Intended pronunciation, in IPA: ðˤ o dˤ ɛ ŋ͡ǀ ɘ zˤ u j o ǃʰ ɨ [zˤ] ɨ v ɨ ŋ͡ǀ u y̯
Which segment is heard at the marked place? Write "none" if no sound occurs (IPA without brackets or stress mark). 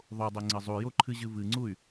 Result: ʑ